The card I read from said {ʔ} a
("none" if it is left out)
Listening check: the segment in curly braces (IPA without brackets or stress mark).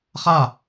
χ